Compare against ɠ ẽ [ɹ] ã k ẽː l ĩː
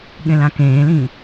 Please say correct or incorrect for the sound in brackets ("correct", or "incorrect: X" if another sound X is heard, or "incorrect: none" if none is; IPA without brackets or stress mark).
incorrect: l